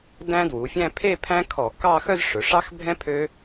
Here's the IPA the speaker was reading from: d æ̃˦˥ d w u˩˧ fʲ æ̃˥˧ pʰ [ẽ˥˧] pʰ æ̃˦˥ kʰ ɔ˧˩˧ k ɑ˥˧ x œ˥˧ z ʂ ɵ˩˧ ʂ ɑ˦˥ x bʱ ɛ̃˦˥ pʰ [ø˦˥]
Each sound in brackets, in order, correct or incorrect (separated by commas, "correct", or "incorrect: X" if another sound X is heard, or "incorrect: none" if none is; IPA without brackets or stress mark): incorrect: e˥˧, correct